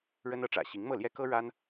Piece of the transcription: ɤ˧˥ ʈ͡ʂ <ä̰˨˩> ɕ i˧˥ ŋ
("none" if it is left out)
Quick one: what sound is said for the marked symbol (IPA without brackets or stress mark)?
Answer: ä̰˨˩